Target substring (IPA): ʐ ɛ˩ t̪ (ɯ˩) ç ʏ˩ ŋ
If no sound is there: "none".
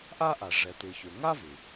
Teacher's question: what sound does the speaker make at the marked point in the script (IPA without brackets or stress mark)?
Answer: ɯ˩